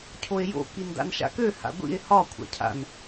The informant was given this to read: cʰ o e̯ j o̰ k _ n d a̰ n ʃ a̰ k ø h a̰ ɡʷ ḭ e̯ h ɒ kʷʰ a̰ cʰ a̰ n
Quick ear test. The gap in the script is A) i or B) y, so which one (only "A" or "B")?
A